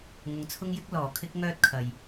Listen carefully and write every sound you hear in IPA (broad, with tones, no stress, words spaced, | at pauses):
ŋʊ˨˧ŋt͡sʰʊ˥ŋjɪ˥k̚ lɔː˨˩kʰɪ˥k̚ ŋœː˥t̚kʰɐ˨j